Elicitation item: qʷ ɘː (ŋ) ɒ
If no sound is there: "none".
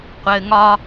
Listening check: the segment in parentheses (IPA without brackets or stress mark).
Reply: ŋ